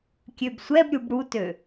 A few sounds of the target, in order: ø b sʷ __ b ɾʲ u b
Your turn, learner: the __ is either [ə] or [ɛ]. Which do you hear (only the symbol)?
ɛ